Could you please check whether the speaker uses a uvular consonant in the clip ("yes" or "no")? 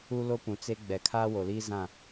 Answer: no